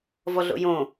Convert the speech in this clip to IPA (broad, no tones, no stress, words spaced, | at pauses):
vɔɮo̰jõ